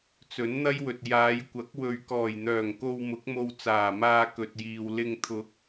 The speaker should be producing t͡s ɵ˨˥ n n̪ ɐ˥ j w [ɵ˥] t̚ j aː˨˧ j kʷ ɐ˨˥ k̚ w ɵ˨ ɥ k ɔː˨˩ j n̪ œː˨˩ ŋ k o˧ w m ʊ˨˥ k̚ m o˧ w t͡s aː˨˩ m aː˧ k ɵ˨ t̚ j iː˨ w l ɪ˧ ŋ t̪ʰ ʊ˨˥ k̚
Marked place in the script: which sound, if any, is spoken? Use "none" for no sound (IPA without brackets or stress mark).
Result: ɵ˨